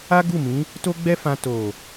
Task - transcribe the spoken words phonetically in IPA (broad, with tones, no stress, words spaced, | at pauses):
a˦ɡu˦˨mĩ˨˦ | to˦ɡ͡bɛ˦fã˧ to˨